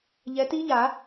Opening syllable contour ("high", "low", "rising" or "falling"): rising